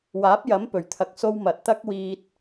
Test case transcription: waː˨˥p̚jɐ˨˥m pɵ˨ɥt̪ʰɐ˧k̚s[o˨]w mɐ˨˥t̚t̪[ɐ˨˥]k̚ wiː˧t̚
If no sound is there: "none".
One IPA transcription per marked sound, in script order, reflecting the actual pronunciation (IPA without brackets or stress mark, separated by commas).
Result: o˥, ɐ˥